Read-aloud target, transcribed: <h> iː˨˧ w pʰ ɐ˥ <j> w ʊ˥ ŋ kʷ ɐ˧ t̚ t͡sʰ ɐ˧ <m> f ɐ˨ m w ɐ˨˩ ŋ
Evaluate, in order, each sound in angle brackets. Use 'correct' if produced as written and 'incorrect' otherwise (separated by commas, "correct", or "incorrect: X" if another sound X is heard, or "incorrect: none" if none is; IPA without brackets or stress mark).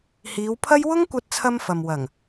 correct, correct, correct